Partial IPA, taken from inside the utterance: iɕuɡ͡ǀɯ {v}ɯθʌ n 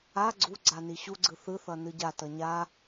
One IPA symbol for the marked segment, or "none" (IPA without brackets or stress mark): θ